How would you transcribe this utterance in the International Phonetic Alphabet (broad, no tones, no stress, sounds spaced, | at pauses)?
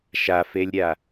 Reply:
ʃ a f e lʲ ɾʲ a